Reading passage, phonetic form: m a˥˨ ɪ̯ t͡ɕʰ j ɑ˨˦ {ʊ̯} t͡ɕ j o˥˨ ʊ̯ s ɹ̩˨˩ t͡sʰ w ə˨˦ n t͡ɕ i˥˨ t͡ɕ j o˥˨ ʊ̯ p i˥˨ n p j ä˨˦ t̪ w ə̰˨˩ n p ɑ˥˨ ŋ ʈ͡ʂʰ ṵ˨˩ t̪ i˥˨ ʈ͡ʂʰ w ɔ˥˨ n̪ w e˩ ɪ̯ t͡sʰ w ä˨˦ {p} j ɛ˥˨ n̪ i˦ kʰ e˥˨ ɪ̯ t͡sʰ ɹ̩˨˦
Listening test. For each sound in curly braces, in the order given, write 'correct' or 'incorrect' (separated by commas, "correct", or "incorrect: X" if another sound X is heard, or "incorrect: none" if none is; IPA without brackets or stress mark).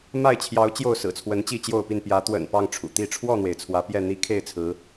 correct, correct